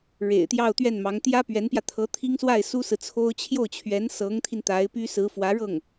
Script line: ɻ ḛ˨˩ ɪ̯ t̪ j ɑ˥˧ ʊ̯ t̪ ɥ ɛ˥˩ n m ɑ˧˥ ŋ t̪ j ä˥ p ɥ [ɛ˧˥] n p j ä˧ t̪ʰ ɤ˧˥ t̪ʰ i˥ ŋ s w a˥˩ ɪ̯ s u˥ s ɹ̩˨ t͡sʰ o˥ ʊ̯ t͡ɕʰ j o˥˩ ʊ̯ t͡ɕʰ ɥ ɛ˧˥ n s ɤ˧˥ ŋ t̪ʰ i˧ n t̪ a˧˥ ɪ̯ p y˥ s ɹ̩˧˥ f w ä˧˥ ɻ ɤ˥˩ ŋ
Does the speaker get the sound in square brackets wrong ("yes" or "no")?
no